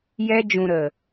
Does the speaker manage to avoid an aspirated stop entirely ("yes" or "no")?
yes